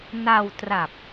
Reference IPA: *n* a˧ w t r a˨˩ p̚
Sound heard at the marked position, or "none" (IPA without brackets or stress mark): n